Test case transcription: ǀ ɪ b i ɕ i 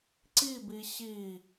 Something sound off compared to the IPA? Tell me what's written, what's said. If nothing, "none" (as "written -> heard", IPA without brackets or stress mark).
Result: ɪ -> i